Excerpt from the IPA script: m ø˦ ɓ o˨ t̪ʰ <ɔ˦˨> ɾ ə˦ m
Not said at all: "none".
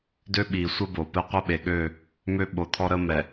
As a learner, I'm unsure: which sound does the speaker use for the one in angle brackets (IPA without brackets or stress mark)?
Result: ɔ˦